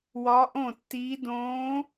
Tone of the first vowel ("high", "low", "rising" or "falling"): rising